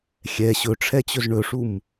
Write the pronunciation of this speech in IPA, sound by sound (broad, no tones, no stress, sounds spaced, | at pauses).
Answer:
xʲ ɛ ɕ ɵ ʈ͡ʂʰ ɛ t͡ɕ ɵ z ɳ ɵ ʂ u m